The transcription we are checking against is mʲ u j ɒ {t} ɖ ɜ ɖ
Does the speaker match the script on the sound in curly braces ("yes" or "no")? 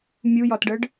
yes